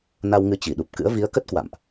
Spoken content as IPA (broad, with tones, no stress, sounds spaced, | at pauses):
n a˧ w ŋ ɨ˧ t͡ɕ i˧˩ ɗ u˨˩ p̚ k ɨ̰˧˥ ə̯ v i˨˦ ə̯ k ə˦˥ t̚ k w a̰˧˨ m ʔ